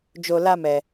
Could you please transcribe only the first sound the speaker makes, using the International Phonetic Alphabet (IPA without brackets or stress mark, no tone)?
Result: d͡ʒ